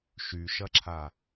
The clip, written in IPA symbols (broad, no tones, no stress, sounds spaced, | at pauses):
ʃ y ʃ ɐ ǁʰ a